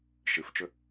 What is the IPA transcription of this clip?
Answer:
ʃ ɨ f t͡ʃ ɵ

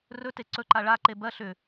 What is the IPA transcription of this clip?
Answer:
r ɵ t e ǀ ɵ ǃ a ɭ a ǃ e b ɜ ɬ ʏ

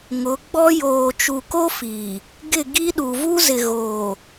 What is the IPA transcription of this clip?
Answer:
ŋ ʊ˨˦ ɡ͡b ɔ˦ j oː˨ t͡ʃ u˨ k o˦ f iː˨ | ɡ ɪ˦˨ ɡ i˦ ɗ u˨ v u˦ z ɪ˨ ɣ oː˨

